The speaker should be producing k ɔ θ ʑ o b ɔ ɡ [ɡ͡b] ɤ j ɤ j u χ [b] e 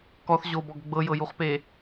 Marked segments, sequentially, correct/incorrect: correct, incorrect: p

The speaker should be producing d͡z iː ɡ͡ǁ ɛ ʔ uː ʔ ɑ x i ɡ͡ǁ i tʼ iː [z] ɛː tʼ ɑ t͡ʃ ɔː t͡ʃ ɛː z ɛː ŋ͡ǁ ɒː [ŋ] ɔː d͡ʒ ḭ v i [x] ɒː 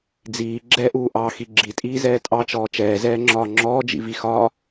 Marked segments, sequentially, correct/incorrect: correct, incorrect: ŋ͡ǁ, correct

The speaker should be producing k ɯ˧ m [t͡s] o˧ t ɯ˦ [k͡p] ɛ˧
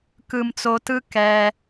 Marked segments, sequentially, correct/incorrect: correct, incorrect: k

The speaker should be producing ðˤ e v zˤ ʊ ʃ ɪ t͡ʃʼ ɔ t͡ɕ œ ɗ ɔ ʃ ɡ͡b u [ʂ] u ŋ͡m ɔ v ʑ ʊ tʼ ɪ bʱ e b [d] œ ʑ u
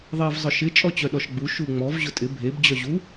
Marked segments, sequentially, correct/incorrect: incorrect: ʃ, incorrect: d͡ʑ

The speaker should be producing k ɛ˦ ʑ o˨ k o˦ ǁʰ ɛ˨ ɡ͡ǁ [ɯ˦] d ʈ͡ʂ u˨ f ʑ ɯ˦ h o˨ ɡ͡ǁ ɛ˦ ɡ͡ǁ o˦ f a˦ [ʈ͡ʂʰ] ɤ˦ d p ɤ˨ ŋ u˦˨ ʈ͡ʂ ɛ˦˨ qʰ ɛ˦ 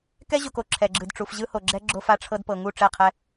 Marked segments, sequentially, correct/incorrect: incorrect: ɯ˨, correct

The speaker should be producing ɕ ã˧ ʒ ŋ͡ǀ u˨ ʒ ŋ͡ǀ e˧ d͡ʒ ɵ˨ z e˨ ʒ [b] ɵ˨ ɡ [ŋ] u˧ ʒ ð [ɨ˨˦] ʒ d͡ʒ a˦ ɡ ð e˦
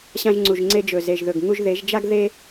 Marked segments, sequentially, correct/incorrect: incorrect: ð, correct, incorrect: e˨˦

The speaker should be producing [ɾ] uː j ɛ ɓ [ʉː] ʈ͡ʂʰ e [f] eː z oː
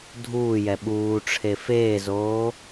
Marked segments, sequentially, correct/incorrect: incorrect: dʱ, incorrect: uː, correct

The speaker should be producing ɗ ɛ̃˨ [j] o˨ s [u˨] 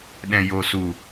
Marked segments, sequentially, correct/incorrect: correct, correct

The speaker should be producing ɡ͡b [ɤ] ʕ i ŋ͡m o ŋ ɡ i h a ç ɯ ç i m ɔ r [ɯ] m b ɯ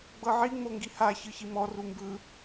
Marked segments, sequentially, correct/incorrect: correct, incorrect: u

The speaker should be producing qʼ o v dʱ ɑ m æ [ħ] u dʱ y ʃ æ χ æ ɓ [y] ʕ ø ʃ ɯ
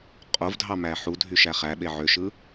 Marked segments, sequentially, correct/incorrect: correct, incorrect: e

